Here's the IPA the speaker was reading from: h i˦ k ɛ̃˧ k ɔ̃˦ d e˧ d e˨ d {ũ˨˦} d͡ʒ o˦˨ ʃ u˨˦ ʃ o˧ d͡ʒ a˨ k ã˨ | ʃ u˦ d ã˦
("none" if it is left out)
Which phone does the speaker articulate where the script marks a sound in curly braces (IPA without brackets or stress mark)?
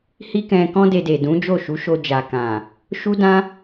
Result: ũ˨˦